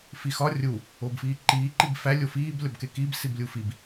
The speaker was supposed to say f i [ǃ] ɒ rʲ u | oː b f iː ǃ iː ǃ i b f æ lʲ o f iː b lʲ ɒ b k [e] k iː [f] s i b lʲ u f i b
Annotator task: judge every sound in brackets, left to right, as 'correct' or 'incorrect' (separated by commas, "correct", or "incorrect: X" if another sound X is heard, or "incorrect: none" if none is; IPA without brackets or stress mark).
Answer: incorrect: x, correct, incorrect: b